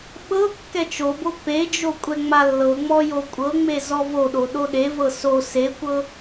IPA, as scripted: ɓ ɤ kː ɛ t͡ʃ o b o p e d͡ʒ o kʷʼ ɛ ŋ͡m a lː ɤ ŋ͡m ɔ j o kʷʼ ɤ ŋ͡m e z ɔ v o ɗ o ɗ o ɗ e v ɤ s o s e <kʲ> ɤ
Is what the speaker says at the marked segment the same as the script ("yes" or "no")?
no